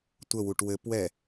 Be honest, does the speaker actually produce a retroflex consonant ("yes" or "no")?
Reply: yes